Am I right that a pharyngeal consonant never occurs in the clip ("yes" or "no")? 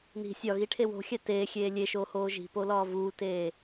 yes